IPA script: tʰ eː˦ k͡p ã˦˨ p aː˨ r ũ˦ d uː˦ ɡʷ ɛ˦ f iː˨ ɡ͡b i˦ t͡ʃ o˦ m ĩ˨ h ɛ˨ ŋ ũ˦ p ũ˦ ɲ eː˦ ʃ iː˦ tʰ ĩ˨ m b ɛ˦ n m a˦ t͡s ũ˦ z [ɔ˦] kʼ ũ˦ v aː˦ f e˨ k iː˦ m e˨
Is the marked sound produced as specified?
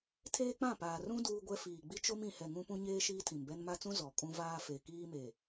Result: no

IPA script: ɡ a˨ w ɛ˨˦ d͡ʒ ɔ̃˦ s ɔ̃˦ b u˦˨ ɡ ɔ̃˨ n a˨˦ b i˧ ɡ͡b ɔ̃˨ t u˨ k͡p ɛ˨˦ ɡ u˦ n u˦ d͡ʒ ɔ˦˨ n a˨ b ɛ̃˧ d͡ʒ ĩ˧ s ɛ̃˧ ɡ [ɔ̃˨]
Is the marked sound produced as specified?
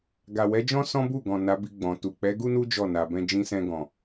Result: yes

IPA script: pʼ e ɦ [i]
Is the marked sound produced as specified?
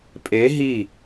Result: yes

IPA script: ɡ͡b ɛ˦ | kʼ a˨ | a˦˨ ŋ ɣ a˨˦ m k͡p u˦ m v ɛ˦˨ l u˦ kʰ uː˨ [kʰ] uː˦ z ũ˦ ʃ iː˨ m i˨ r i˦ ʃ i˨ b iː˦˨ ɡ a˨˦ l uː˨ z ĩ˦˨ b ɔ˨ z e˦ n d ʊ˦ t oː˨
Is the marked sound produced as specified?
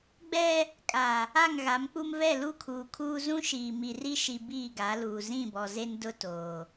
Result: yes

